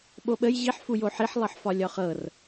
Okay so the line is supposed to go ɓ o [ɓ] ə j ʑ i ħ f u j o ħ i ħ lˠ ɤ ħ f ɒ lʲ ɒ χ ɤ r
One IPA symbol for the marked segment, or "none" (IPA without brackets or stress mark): ɓ